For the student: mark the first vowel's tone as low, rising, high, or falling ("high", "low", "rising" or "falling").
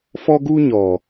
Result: high